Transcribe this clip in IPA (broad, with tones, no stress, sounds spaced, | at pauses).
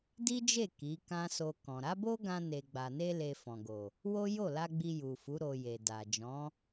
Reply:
d i˦ d͡ʒ e˦˨ k i˨˦ k ã˦ s o˧ k ɔ̃˨ ɾ a˨˦ b o˦ ɡ ã˧ n e˨ ɡ͡b a˨ n e˧ l e˧ f ɔ̃˨ ɡ o˨ | w o˦ j o˦˨ l a˧ ɡ͡b i˧ j u˨ f u˨˦ ɾ o˧ j e˨ d a˨ d͡ʒ ɔ̃˨˦